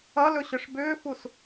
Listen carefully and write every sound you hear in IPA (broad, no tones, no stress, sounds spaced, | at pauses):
ʌ l ɵ ɕ ʏ ʂ b ʏː f u s